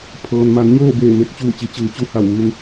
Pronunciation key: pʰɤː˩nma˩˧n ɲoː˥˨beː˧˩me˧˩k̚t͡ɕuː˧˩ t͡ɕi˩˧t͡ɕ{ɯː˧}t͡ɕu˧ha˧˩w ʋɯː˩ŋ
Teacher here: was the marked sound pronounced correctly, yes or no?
no